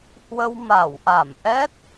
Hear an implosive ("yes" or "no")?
no